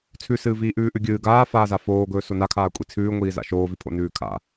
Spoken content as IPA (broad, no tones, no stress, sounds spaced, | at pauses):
t͡sʰ ʉ s ɨː v iː ʔ ʉː ʔ ʉ ɡʲ ɨː ɡ aː f aː z a f oː ɡ ɵː s o n a kʰ aː kʷʼ i t͡sʰ ʉː ŋʷ iː z a̰ ʃ oː v i pʰ o̰ n ʉː kʰ a̰